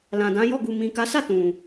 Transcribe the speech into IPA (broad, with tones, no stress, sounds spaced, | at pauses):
l ã˨ d ã˨˦ j ɔ˦˨ ɡ u˨ m ĩ˨ k a˨˦ s a˦˨ t ũ˨